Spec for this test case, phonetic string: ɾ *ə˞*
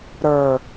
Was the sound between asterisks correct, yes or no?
yes